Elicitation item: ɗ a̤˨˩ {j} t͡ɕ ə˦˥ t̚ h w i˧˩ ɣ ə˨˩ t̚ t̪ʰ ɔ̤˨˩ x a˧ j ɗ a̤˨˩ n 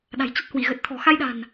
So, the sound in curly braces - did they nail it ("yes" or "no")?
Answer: yes